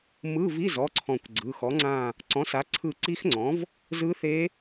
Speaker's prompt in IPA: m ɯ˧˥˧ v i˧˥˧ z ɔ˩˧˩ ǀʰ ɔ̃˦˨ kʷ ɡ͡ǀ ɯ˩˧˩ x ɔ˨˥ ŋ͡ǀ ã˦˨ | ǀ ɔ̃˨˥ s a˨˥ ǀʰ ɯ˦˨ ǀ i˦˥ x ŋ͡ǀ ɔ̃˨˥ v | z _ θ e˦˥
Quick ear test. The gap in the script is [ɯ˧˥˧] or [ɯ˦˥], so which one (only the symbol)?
ɯ˦˥